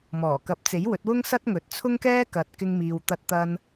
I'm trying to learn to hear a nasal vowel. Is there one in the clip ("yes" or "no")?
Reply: no